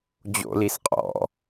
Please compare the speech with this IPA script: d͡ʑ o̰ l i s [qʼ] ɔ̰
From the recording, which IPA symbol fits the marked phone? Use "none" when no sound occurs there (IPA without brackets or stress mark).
qʼ